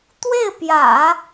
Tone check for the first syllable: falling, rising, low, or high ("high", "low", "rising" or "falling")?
falling